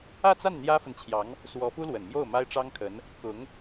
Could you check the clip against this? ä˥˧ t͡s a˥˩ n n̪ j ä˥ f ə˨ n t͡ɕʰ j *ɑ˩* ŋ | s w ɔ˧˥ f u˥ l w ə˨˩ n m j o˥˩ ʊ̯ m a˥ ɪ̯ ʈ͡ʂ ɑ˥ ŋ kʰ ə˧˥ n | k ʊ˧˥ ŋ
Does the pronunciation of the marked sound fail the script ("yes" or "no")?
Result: yes